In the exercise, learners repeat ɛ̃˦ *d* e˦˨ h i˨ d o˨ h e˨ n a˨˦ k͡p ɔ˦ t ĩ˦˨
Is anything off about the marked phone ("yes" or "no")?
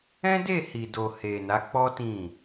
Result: no